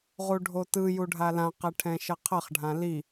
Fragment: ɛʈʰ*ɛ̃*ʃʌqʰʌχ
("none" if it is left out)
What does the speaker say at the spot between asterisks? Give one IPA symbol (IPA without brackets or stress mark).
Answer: ɛ̃